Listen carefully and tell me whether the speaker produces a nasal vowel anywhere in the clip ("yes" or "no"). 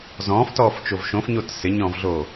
yes